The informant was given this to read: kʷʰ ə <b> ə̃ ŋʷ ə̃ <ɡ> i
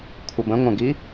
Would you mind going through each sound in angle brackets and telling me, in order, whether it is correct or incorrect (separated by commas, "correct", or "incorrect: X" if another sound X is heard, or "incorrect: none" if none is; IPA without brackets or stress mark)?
correct, correct